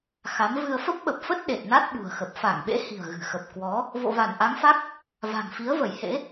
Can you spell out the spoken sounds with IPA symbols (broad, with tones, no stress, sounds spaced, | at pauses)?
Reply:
x a˨˦ m v ɨ˧ ə̯ f ə˦˥ p̚ ɓ ə˨˩ p̚ f ə˦˥ t̚ ɗ e˨˩ t̚ n a˦˥ t̚ ɓ ṳ˨˩ ə̯ x ə˨˩ p̚ f a˧˩ ŋ ɓ ḛ˧˥ h i̤˨˩ ə̯ ɣ ɨ̤˨˩ x ə˨˩ p̚ k w ɔ˨˦ | v o̰˧˨ v a˧˩ n ʔ a˨˦ ŋ f a˦˥ k̚ | v a̤˨˩ ŋ f i˨˦ ə̯ v ə˧˩ j h ḛ˧˥